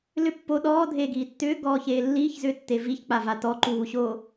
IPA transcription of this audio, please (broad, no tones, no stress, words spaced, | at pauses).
lʏ pːo ɗɔːdʱeːɡiː tːʏːɡɔːçeː lːiːçzʏːtːe viçk͡pava tɔǃuːɕo